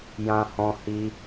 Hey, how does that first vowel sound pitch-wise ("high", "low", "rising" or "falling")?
high